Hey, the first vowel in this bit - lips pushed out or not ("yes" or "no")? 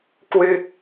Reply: no